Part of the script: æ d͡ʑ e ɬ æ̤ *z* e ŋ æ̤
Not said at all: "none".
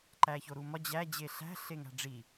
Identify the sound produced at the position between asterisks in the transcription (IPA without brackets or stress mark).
ɬ